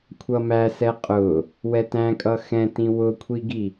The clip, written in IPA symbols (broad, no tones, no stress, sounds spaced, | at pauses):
kʷʰ ʌ m æ s ɛ qʼ ʊ | w ɛ t æ̃ kʼ ʌ x ɛ̃ t ĩ w ʊ kʷʰ i ɡ i